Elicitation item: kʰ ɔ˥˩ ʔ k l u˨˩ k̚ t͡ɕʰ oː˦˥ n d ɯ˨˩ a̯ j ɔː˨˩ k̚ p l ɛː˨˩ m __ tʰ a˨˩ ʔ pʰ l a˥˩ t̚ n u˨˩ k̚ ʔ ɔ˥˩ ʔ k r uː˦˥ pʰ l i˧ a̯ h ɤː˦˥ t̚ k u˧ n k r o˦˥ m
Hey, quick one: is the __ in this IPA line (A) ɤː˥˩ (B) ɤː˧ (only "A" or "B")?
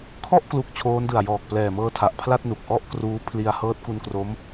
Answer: B